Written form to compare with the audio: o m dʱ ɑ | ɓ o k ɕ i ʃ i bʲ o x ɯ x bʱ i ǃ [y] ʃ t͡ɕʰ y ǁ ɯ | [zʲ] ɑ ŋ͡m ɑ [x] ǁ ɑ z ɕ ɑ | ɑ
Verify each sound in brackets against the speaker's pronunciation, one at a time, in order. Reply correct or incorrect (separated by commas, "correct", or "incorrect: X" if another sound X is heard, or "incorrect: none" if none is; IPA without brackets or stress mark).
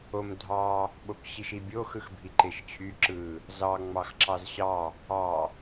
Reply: incorrect: e, incorrect: z, correct